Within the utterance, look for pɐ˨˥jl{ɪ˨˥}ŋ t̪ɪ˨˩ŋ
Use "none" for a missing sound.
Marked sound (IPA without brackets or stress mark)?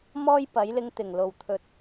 ɪ˧